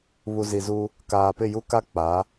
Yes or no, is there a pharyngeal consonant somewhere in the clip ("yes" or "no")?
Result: no